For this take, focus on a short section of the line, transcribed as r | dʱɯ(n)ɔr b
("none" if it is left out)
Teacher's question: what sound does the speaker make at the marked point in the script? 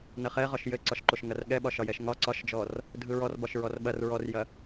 ɹ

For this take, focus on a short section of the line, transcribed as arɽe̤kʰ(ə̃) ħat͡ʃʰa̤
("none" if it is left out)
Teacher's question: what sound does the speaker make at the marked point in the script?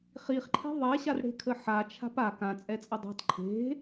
ə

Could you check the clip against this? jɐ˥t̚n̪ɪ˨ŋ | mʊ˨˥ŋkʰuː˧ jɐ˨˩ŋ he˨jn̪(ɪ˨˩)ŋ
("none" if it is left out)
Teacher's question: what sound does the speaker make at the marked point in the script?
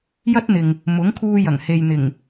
ɪ˨˩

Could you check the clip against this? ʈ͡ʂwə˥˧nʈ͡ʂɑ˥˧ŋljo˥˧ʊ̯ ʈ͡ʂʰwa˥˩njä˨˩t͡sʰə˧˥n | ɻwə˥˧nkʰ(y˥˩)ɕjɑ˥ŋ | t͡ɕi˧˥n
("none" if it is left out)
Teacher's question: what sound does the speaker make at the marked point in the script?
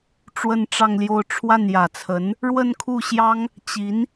u˥˩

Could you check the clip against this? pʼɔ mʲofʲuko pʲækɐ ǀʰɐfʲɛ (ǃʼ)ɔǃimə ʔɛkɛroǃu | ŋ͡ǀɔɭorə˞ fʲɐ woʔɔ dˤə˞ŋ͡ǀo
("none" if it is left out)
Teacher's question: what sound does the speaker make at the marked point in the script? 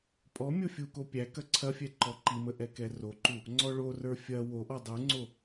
ǃ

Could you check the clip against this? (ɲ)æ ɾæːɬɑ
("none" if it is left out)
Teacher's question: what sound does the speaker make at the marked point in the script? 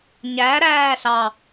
ɲ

